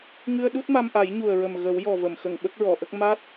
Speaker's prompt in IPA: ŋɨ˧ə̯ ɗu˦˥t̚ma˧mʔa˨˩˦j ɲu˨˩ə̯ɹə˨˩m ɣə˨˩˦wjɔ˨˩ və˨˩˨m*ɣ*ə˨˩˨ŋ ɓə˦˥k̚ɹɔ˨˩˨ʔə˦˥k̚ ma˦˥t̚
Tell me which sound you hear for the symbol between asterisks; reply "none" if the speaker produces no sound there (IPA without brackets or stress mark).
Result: x